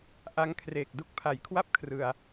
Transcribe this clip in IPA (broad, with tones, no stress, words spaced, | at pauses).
ʔa˧ŋkʰreː˨˩k̚ du˦˥k̚pʰa˨˩jkʰwa˥˩p̚ kʰrɯ˧a̯